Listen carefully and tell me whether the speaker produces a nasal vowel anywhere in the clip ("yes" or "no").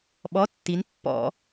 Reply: no